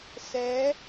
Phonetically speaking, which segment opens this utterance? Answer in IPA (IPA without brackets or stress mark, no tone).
s